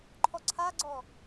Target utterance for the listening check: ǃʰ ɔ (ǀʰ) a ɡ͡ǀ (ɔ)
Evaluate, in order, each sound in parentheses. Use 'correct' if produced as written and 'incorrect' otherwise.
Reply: correct, correct

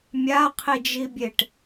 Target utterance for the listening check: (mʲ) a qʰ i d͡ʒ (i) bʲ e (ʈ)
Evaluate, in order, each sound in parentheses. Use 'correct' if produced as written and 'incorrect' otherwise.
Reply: correct, correct, correct

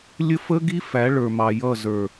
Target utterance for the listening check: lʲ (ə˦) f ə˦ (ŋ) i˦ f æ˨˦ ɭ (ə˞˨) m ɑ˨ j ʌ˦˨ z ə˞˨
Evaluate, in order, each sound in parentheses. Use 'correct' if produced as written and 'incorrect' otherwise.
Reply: correct, incorrect, correct

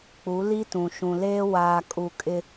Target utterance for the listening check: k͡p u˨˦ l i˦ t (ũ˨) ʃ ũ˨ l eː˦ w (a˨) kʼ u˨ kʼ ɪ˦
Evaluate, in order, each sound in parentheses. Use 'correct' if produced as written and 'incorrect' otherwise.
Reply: correct, incorrect

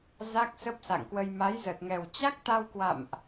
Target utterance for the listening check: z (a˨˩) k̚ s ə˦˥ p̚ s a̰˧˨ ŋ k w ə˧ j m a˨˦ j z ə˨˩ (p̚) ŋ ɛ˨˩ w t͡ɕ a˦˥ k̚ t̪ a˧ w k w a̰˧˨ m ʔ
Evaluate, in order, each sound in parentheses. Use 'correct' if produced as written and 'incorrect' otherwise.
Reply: incorrect, incorrect

